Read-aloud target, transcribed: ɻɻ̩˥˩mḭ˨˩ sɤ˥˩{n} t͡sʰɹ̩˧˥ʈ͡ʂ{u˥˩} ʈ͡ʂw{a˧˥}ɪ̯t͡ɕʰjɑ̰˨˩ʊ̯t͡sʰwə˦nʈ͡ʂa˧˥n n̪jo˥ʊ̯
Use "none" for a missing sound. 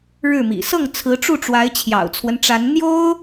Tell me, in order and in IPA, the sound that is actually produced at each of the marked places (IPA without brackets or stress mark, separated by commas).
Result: ŋ, u˥˩, a˧˥